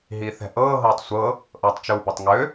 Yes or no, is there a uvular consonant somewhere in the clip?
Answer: no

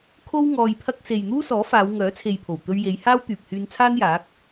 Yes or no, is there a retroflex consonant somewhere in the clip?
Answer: no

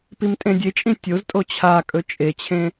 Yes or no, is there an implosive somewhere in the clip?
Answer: no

